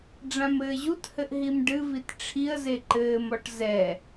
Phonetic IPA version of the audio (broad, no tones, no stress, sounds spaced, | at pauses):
ɖ͡ʐ ã m ɘː ʑ u t h ɘ ʔ ɦ i m ɖ ɨ v i t ʈ͡ʂʰ i ə̯ z e ǃ ɘː m ɔ ʈ z ɛ